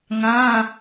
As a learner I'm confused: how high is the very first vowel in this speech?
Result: low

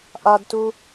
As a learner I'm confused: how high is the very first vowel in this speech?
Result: low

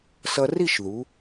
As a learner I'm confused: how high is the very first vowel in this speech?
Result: mid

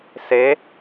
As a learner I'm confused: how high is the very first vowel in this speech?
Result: mid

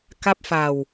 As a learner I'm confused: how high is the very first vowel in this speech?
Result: low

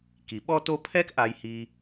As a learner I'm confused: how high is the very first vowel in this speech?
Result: high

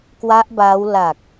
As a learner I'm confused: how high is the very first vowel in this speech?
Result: low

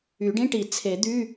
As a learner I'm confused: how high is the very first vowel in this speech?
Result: high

